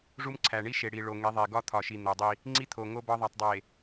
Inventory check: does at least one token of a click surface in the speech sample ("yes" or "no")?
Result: yes